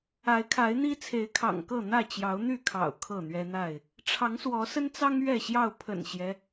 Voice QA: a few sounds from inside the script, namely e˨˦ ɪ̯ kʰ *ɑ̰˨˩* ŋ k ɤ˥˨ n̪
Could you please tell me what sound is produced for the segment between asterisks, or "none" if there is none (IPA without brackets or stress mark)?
ɑ̰˨˩